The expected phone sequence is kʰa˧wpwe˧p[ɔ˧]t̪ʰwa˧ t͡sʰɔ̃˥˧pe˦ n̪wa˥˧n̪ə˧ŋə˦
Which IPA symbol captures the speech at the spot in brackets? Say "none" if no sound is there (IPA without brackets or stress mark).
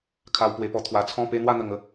ɔ˧